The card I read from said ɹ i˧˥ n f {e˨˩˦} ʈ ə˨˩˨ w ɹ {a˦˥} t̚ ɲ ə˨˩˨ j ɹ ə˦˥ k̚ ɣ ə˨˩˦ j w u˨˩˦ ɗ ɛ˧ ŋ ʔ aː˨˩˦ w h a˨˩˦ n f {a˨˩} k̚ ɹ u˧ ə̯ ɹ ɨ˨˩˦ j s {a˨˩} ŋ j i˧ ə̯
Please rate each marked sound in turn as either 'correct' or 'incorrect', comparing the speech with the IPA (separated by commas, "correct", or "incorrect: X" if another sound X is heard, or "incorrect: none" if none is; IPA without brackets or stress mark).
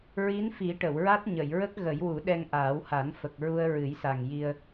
incorrect: i˨˩˦, correct, incorrect: ə˨˩, correct